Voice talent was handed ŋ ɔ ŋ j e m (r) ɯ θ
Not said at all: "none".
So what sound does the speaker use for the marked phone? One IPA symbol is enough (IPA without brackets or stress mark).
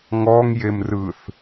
r